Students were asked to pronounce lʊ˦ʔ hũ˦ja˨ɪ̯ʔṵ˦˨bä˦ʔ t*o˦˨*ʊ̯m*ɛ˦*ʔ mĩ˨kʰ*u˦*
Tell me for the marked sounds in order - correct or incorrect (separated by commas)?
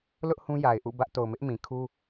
incorrect, incorrect, correct